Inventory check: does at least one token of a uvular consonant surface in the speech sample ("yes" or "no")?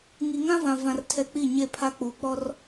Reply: no